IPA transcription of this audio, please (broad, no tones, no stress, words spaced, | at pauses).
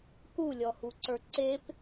kulʲɔhuǀə˞ ǀep